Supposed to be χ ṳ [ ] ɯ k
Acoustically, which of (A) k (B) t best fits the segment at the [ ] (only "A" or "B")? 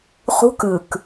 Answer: A